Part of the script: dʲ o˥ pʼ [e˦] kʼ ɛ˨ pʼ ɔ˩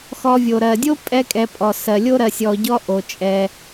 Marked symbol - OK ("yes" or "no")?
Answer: no